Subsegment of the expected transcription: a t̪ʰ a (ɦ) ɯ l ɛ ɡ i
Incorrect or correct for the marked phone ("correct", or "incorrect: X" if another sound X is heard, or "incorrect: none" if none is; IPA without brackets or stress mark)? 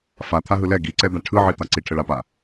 correct